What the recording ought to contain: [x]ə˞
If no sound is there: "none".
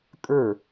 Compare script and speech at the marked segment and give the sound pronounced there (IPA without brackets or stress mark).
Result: kʼ